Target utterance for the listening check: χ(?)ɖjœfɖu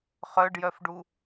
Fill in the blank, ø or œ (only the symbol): œ